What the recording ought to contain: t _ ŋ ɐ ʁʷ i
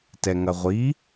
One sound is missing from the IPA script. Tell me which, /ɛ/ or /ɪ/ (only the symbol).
ɛ